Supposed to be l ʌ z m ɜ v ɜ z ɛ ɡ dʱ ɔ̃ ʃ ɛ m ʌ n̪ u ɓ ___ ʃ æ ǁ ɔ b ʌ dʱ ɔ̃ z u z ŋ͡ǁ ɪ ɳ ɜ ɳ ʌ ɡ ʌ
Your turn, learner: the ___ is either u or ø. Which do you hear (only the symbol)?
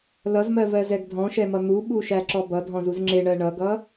u